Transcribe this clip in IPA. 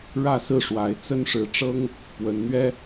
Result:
ɻ ä˥˨ s ɹ̩˥˨ ʂ w a˨˦ ɪ̯ t͡s ə˦ n ʂ ɻ̩˨˦ ʈ͡ʂ ɤ˦ ŋ | p w ə˨˦ n n̪ ɥ ɛ˦

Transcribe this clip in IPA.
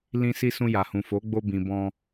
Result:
l ĩ˧ s i˧ s ũ˧ j a˨ h ũ˨ f o˨˦ ɡ͡b o˧ b ĩ˨ b ɔ̃˧

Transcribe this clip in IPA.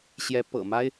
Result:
ɕ j ɛ˧˥ p ɤ̰˨˩ m a˥ ɪ̯

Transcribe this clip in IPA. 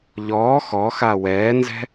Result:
ʎ ɔː x ɔ x a w ɛː n z ɛ̤

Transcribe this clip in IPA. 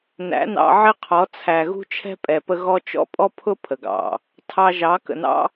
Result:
n æ̰˨˦ n ɑ̰˧ ʕ ɪ˦ qʰ ɔ˨˦ t͡sʰ æ˨ ɣ ṳ˦ t͡ʃʰ ɛ̤˦ pʼ ɛ˨ p ə˧ ɣ ɔ˦ t͡ʃ ɔ̰˦ pʼ ɔ˦ pʰ ʊ˦ pʰ ə˨ ɡ ɑ̰˨ | tʰ ɑ˧ ʒ ɑ˨˦ k ə̰˨ n ɑ̰˦

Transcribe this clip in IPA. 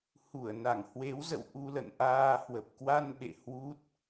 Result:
h u˧˩ ə̯ n a˧˩ ŋ h w e˨˦ w z ə̰˧˨ w ʔ u˧ l ə̰˧˨ n ʔ aː˧ h w ə˨˩ p̚ k w a˧ n ɓ ḛ˧˨ h w u˦˥ t̚

